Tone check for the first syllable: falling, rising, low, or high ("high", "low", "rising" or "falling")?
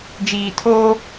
low